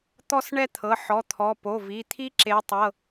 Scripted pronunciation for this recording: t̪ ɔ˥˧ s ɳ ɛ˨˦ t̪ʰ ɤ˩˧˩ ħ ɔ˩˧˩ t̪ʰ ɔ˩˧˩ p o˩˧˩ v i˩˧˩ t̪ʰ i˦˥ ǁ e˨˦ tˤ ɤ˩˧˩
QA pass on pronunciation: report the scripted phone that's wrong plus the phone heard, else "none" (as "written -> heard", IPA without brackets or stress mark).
ɛ˨˦ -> ɛ˥˧